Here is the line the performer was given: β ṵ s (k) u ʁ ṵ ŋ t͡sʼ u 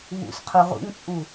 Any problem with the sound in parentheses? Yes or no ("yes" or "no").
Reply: yes